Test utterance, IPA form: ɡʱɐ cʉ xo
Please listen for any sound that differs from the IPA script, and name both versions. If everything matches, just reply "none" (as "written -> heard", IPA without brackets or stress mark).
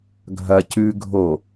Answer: x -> ɡʱ